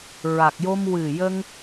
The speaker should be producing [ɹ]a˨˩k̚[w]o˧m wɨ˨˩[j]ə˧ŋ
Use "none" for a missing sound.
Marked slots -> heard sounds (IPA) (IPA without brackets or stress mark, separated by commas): ɹ, j, j